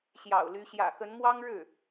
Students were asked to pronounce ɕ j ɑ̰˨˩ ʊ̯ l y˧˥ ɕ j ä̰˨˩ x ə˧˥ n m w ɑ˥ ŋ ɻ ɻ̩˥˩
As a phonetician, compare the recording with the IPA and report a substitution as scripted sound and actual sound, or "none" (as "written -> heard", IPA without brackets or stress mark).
none